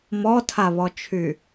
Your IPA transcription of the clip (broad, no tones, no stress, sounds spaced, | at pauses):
m ɔ tʰ a β ɔ t͡ʃʰ y